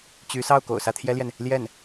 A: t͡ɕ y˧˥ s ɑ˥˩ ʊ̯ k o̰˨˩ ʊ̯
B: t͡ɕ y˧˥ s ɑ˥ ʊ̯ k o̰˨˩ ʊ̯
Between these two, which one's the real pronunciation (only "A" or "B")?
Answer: A